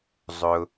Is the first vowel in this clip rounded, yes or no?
yes